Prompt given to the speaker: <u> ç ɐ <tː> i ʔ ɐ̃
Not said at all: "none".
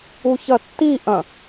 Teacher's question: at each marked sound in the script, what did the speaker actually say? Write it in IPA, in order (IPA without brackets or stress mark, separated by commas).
u, tː